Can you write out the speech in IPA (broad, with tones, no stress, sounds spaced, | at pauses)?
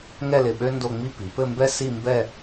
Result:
ŋ ɛ˥˧ l ɪ˧˩ ɓ ø˥ n d o˥˧ ŋ͡m i˥ p i˩˧ p ɘ˥˧ m b ɛ˥ s i˥˧ m b ɛ˥˧